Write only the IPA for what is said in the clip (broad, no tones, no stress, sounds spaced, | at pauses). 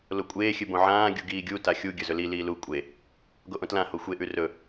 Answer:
l o kʷʼ eː xʲ ɨ b õ ʕ ãː ɡʲ u ɡ iː ɡʲ u t a xʲ u ɡʲ ɵ z ɵ l i l iː l u kʷʼ e | ɡ o ʔ õ t l ã h o xʷ e ʔ ʉ r ɵ